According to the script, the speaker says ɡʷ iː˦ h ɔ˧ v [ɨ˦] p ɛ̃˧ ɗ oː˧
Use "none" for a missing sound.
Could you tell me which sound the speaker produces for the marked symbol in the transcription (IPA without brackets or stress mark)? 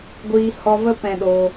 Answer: ə˦